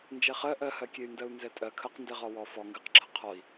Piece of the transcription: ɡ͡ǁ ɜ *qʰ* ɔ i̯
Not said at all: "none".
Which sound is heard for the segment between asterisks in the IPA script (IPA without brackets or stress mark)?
qʰ